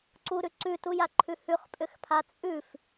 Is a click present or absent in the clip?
present